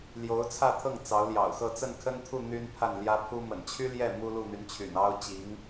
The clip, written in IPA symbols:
ljo˧˥ʊ̯t͡sʰä˥˧t̪ʰɤ˥˩ŋ t͡sɑ˧˥ʊ̯ljɑ̰˨˩ʊ̯xɤ˥˧ t͡sə˥˩nkʰə˥nt̪ʰu˥˩ n̪y˥npʰa˥˩n ljä˥pʰu˥ mə̰˨˩nt͡ɕʰy˥ljɛ˥˩ mu˥lu˥˩n̪y˧˥nt͡ɕʰy̰˨˩n ɑ˥ʊ̯t͡ɕi˧˥ŋ

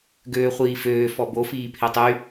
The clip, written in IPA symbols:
ɡøːχʷiːføː fɔbo fiːpʰetˤy

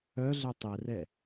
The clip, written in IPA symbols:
œ ɮœtˤɛrɛ

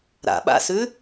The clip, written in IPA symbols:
ɾa̰ɓa̰sʉ

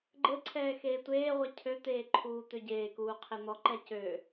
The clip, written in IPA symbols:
ɡ͡ǃɘǀʰɛː xeːtʷeːʁʷɛ cʰøt̪eː ǃʰuːt̪øɟeːkuː qʰen̪ɔǃɛ cø

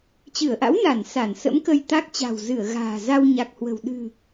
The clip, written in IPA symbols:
t͡ɕɨ˧˩ə̯ʔa̰˧˥wna˧˩n sa˧˩n sə̰˧˥mkə˧jt̪a˦˥k̚ t͡ɕa̤˨˩wzɨ˧˩ə̯ ɣa̤ː˨˩za˧wɲa˨˩k̚hwə̤˨˩w ɗɨ̤˨˩

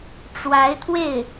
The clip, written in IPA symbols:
ʈ͡ʂwa˧˥ɪ̯t̪ʰwe˥˩ɪ̯

